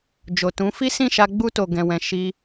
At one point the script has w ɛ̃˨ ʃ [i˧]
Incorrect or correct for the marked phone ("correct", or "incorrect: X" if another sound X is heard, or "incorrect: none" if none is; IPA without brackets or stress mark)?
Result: correct